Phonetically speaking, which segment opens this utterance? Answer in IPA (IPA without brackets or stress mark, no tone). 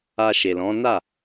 a